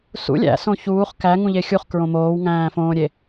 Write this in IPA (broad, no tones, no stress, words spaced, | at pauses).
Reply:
sṵ lʲæ̰sõ çuːχ kæŋũʎe xʲuχkɹõ moːwŋæ̃ːfõːɾʲe